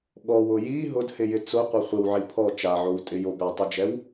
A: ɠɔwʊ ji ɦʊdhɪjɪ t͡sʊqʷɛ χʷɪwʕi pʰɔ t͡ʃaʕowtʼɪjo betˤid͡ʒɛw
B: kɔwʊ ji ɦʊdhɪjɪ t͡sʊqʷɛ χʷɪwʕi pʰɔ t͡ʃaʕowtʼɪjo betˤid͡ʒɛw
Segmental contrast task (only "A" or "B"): A